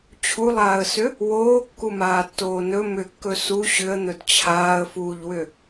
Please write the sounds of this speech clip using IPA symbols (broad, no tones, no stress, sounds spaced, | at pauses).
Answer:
t͡ɕʰ u lˠ aː ə̯ s ʏ | w oː kː u m aː tː oː n ɵ m ʏ kː ɵ s u ɕ ʏ ə̯ n̪ ɵ d t͡ɕʰ aː ə̯ f uː ʎ w ʏ